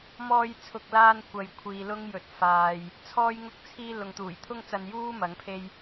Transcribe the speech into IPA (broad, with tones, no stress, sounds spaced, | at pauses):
m ɔː˧ j t͡sʰ ʊ˨ k̚ l aː˧ n kʷ ɐ˧ j kʷʰ iː˨ l ʊ˥ ŋ j ɵ˨ t̚ f aː˨ j | t͡sʰ ɔː˥ j ŋ ʊ˥ k̚ t͡sʰ iː˥ l ʊ˨ ŋ t̪ uː˨˩ j t̪ʰ ʊ˥ ŋ t͡s ɐ˧ n j uː˥ m ɐ˨˥ ŋ pʰ e˥ j